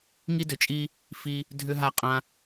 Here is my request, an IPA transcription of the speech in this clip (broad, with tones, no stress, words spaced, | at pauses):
ŋi˦dʏ˨ t͡ʃʼi˦ | fi˧ | dʱʏ˧ɦa˧ qʼã˧